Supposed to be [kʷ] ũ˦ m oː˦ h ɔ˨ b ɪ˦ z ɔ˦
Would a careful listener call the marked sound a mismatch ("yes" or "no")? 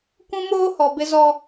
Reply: no